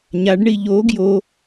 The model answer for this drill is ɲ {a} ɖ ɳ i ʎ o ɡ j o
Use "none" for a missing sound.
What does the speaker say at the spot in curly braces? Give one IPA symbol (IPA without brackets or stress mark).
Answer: a